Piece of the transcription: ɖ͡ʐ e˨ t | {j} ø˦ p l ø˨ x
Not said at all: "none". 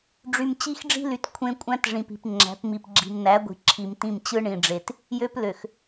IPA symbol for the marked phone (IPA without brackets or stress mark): j